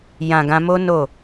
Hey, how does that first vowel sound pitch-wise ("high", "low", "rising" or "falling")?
low